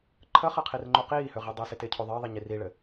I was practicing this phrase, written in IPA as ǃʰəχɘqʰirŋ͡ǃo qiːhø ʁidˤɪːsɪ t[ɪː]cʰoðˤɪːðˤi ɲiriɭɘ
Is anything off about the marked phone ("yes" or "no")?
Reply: no